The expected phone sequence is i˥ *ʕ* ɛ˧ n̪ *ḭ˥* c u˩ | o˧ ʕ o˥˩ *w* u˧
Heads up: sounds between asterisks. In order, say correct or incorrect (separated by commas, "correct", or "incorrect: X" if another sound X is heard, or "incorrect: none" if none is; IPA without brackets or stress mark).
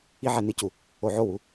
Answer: correct, incorrect: i˥, correct